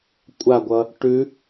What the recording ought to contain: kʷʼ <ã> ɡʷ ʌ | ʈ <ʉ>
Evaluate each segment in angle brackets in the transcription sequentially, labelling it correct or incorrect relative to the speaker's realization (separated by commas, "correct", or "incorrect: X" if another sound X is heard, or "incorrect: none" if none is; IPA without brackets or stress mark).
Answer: incorrect: a, correct